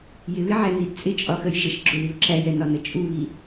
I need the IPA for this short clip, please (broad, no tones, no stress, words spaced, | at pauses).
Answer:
jɪβɪʕænzid t͡sʼɪt͡ʃʼɒxəj ʒəʃ ɡ͡ǁʊðio̯ ǁæjɛnɒnə t͡ʃʼuβi